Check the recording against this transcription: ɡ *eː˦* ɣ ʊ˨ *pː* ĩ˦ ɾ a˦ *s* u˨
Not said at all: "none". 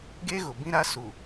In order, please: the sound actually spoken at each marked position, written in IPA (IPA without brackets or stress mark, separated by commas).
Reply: e˦, b, s